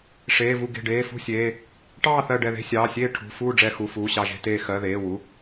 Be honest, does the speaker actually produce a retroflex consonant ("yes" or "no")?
yes